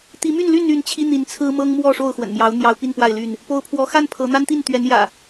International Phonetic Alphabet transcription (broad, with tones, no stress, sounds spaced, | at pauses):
t̪ i˨˦ m y˥˨ n l y˥˨ n y˥˨ n t͡ɕʰ i˦ n̪ i˨˦ n t͡sʰ ɹ̩˦ m ɤ˦ ŋ m w ɔ˥˨ ʂ o˥˨ ʊ̯ x w ə̰˨˩ n m j ɑ˨˦ ʊ̯ n̪ j ɑ˦ ʊ̯ p i˥˨ n p w a˥˨ ɪ̯ l y˥˨ n | p o˨˦ ʊ̯ pʰ w ɔ˨˦ x a˥˨ n pʰ ɤ˨˦ n̪ a˦ n t̪ i˥˨ n t̪ ɥ ɛ˨˦ n j ä̰˨˩